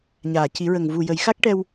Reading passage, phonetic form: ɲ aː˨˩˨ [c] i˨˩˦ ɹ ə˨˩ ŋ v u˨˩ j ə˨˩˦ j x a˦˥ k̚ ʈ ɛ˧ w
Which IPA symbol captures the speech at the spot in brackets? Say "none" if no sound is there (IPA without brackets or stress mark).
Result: c